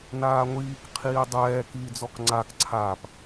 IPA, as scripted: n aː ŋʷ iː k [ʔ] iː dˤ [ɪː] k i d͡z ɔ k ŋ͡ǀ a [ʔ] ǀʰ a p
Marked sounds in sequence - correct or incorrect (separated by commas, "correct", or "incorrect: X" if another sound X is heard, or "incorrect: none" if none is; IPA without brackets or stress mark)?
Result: incorrect: qʰ, incorrect: ɛː, incorrect: k